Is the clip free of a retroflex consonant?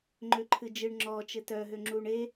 no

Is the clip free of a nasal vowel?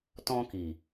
no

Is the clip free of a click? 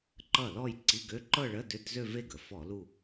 no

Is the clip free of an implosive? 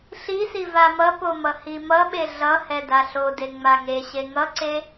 no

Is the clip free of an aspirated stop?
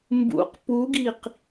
yes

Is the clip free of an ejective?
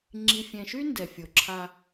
yes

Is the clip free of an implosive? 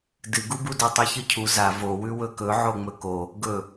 yes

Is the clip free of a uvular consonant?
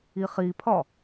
no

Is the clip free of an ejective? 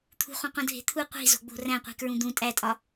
no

